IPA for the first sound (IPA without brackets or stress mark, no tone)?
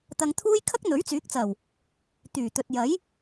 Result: t̪